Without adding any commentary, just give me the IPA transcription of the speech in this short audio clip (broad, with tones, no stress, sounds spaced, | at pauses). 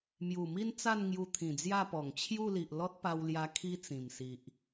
m j u˨˩ m i˦ n t͡s a˥˧ n ŋ j u˧ t̪ʰ ĩ˨˩ d͡z j a˥˧ p ɔ˨˩ ŋ t͡ɕʰ j u˥˧ l i˨ ʔ l ɔ˦ t̚ p a˧ w l j a˧ kʰ i˦ t͡s ĩ˨˩ m s i˨ ʔ